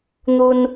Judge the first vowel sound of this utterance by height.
high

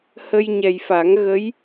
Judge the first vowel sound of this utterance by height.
mid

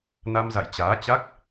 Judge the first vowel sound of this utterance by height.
low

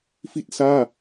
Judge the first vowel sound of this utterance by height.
high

